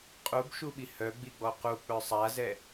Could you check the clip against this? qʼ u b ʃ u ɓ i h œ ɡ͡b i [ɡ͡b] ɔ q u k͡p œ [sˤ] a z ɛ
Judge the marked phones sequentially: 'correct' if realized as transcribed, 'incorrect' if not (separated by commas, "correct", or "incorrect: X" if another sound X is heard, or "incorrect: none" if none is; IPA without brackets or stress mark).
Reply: correct, correct